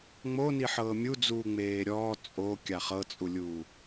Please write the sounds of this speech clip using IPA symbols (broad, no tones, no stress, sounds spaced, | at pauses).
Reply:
ŋ͡m o n i ħ ɤː mʲ u d͡z uː ŋ͡m eː ɾʲ ɔː t͡sʼ o kʲ a χ ɤ t͡sʼ u lʲ uː